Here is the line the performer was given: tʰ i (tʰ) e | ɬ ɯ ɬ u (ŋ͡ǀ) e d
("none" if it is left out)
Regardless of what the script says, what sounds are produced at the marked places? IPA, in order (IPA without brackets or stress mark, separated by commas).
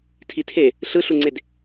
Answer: tʰ, ŋ͡ǀ